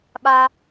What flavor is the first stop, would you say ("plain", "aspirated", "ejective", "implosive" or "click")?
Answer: implosive